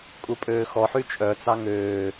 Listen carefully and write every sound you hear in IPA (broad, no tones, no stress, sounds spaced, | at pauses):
kʼ u pʼ øː x ɔ ħ y t͡ʃʼ œ t͡s ɑ ŋ øː